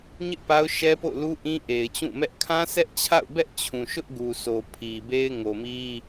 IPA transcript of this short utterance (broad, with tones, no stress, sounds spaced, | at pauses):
ɲ ɪ˦ ʔ p a˦ ʊ̯ ʃ ɛ˦ p o̰˦˨ ʊ̯ l u˦ ʔ ĩ˦ ʔ e˨ ɪ̯ t͡ɕ ũ˦˨ m ɛ˦ ʔ kʰ ã˦ s ɛ˦ ʔ t͡ɕʰ a̰˦˨ ʊ̯ b ɛ˦ ʔ t͡ɕʰ ũ˨ ʃ ʊ˦ ʔ ɡ u˨ s o˨ pʰ i˨ b e˦ ɪ̯ ŋ o˨ m i˦